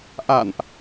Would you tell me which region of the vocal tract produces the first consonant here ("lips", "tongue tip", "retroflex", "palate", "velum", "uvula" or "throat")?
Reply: throat